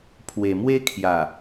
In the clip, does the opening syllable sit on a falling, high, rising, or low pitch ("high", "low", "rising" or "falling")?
low